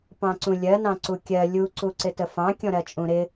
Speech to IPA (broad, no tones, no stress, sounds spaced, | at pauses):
p ɑ̃ ǀ ũ lʲ ɜ n ɑ̃ ǀ u kʲ ɜ lʲ u ǀ u ǀ ɪ t ə f ɑ̃ kʲ ɔ̃ ɾ ɜ t͡ʃʼ ũ ɾ ɪ